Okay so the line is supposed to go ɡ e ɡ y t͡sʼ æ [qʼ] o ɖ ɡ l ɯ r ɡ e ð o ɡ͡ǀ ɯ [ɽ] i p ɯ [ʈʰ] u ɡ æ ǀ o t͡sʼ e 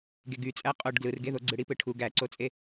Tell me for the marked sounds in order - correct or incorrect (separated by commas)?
correct, correct, correct